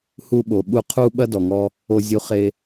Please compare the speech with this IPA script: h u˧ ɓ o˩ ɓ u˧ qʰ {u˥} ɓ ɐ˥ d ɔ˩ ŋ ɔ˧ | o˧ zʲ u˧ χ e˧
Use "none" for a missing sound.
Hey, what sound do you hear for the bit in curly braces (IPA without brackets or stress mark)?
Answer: u˥